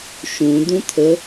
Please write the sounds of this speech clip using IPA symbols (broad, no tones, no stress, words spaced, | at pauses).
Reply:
ʃũ d̪ũt̪ʰə